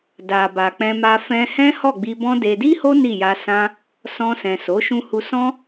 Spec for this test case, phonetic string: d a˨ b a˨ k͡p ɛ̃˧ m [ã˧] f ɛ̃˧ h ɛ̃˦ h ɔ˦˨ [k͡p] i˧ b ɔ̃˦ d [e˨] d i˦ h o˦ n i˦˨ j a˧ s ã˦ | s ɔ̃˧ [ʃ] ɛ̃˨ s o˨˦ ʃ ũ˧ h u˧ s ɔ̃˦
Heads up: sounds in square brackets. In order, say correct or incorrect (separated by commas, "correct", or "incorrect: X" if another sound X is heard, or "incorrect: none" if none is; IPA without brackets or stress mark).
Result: incorrect: a˧, incorrect: ɡ͡b, incorrect: e˧, incorrect: s